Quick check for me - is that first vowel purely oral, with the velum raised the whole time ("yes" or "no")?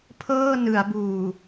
yes